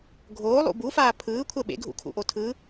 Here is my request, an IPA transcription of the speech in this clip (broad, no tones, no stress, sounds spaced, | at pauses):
ɡʱ oː lˠ ṵ b u f aː pʰ ɯː kʷʰ ɛ ɓ ḛ ɡʱ ṵ kʰ ṵ ʔ o tʰ ɯ